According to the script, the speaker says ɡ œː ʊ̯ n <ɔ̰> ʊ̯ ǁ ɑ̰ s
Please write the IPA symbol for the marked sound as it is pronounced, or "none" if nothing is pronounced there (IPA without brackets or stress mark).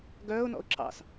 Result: ɔ̰